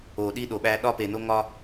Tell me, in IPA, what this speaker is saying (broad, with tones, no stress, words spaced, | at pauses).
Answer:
o˨ɗi˦ɗo˨ɓæ˦ ɗɒ˦pe˨no˦ŋɒ˦